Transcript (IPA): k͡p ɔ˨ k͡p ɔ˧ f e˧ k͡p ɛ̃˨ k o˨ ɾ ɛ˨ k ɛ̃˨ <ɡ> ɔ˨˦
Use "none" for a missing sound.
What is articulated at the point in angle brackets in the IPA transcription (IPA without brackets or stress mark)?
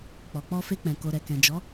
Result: d͡ʒ